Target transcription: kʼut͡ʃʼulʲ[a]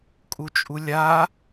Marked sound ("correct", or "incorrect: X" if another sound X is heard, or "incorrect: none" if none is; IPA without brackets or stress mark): correct